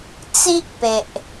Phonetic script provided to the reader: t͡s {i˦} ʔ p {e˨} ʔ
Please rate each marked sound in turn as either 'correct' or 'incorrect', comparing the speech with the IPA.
correct, correct

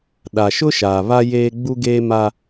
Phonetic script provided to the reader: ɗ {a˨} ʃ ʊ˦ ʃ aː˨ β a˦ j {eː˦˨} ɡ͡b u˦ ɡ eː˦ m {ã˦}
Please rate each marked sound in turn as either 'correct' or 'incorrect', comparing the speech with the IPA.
correct, incorrect: eː˦, incorrect: a˦

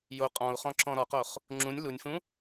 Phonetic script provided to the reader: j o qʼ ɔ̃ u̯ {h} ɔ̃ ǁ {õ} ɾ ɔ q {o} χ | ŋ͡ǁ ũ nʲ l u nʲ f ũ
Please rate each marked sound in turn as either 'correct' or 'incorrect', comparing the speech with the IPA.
incorrect: χ, incorrect: ɔ̃, correct

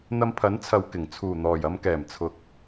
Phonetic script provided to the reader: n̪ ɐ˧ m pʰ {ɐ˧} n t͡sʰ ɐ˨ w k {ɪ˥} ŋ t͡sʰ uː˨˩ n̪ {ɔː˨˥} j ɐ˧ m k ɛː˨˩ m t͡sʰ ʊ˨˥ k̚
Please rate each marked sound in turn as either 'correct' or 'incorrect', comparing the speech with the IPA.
incorrect: ɐ˨˥, incorrect: ɪ˨˩, incorrect: ɔː˨˩

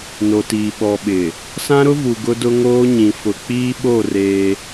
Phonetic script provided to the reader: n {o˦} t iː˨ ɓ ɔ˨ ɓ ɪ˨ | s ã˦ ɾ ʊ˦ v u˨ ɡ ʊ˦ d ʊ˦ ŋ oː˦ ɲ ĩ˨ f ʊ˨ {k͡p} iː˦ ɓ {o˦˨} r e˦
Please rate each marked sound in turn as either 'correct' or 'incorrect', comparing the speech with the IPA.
incorrect: o˨, correct, correct

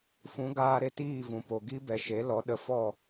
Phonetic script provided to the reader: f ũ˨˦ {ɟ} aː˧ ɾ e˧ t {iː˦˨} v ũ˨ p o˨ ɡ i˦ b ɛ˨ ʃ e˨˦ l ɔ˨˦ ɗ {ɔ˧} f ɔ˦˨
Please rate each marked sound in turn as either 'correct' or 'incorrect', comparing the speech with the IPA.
incorrect: ɡ, correct, incorrect: ə˧

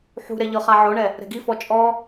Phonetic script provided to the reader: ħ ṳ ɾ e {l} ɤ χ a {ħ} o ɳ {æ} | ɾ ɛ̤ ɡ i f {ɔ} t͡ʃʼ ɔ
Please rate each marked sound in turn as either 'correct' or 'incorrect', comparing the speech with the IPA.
incorrect: ʎ, incorrect: ʕ, incorrect: ɛ, correct

